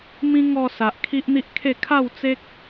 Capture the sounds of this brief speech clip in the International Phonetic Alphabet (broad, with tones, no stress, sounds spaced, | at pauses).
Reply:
m ĩ˦ ŋ ɔ˧ s a˨ ʔ kʰ i˦ ʔ n̪ i˦ ʔ kʰ e˥˧ kʰ a˥˧ w t͡s e˦ k̚